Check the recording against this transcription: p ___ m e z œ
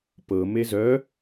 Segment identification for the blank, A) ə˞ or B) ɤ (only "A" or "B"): B